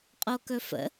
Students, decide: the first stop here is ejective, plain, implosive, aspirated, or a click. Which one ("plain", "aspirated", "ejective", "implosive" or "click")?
ejective